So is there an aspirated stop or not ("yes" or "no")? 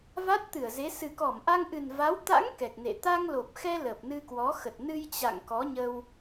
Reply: no